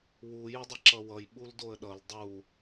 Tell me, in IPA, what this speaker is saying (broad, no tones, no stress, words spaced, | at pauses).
wu jʊdˤʌǁʌwʌj ɓuldoə̯ɗʌl dˤu